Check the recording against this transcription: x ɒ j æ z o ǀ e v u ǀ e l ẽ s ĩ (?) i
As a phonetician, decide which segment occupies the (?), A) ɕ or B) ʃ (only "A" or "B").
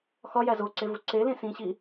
A